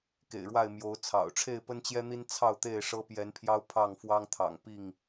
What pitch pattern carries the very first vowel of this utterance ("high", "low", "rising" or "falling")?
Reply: low